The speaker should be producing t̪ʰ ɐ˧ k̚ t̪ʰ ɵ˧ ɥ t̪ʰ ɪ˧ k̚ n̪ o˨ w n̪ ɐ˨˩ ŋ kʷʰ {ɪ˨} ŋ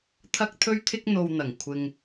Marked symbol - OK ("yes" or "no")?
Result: yes